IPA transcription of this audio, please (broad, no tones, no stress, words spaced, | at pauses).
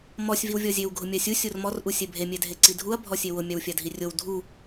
mɔsʲ viwvʲɔzʲew ɡʱʊmʲasʲu sʲormɔr ʔusʲɛbʱe mʲɛdʱeǀidʱuɐ̯ bʱɔsʲewʊ mʲawfʲadʱirʲow dʱu